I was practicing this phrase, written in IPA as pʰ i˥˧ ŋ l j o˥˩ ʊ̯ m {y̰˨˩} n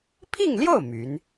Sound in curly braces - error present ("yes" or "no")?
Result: yes